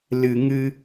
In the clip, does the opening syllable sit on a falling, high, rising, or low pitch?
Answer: low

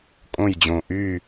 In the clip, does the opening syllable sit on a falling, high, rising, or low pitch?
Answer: falling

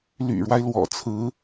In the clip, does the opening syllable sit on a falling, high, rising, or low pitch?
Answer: low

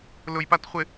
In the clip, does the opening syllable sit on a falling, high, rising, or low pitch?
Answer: low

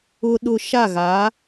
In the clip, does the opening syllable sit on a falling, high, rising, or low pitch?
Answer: high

